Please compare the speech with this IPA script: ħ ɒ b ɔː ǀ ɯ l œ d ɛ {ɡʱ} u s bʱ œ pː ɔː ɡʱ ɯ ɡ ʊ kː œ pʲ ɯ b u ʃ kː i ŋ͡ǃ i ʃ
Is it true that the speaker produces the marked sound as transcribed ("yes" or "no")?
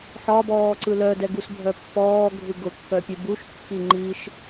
no